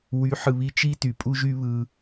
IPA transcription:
wy˨˦ħɯ˨βi˧ t͡ʃi˦ty˨pʼu˦ʒy˦ βɯ˧

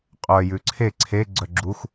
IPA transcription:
qʼœ jʉǀʰe ǀʰe ɡ͡ǀœɡ͡ǁux

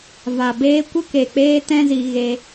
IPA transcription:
va˨beː˧kʷə˦ ke˨k͡peː˧ tɛ̃˦zi˧ ɣe˦

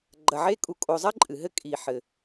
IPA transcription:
ɡ͡ǃɐ˨ʕe˦ kʼu˨kʼo˨zˤɐ˥ ǃʼɨ˩ɦɘ˥ kʼi˩ħɘ˩

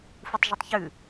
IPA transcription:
futˤʒutˤçʉ

